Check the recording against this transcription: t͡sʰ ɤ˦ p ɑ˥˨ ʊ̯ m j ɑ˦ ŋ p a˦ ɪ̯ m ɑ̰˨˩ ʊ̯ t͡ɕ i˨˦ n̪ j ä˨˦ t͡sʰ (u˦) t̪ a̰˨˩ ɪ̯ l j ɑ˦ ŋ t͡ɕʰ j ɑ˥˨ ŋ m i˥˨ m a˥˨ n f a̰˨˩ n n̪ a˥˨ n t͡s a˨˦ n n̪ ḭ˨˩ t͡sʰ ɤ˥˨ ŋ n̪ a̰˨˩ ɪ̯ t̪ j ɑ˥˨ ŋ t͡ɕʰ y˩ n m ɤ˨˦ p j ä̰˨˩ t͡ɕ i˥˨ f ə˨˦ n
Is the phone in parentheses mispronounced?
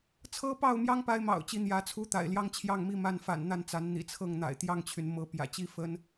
no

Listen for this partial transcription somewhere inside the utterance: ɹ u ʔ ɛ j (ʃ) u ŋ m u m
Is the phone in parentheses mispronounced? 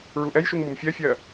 no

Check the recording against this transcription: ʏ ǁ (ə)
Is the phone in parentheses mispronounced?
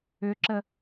no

